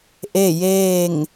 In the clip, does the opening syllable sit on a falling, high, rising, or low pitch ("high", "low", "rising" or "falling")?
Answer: falling